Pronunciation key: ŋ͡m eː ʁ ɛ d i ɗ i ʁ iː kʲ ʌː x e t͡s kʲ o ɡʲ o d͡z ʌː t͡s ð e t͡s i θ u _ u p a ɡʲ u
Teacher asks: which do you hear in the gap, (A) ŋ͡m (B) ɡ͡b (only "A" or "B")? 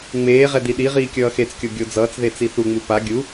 A